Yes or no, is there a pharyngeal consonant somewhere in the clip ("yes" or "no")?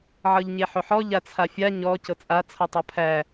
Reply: yes